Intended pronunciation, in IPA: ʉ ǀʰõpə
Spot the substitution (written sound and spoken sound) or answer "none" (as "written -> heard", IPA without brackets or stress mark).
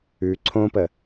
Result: none